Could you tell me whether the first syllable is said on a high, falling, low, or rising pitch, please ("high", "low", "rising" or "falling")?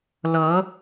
rising